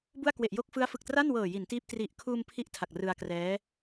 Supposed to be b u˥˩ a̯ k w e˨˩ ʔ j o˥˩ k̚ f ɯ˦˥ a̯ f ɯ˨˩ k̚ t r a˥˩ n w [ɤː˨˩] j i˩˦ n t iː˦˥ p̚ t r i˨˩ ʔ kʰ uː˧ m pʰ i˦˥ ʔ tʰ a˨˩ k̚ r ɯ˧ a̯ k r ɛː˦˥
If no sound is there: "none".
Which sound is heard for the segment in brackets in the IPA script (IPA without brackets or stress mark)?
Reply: ɤː˨˩